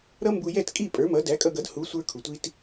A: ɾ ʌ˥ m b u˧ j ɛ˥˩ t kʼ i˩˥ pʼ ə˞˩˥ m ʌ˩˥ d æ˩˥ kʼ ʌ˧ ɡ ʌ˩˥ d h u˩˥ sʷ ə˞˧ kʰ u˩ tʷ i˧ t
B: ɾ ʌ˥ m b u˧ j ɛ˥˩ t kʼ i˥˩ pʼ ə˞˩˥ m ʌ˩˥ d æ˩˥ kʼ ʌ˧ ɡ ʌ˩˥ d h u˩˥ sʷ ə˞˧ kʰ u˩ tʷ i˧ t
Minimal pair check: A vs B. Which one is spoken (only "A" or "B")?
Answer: B